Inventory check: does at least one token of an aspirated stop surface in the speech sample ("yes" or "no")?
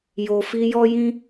no